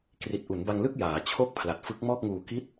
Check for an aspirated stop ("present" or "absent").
present